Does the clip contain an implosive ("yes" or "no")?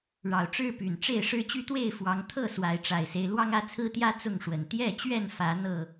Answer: no